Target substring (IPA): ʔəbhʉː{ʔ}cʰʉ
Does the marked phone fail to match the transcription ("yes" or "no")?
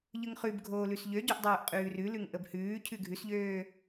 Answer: yes